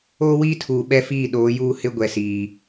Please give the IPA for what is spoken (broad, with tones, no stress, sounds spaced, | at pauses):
oː˦ w iː˦ tʰ uː˨ ɓ ɛ˦ f iː˦˨ ɗ oː˨˦ j uː˦ h ɪ˦ ɡʷ ɛ˨ s iː˨